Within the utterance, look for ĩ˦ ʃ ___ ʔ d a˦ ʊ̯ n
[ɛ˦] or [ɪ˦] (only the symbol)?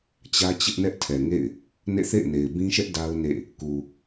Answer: ɛ˦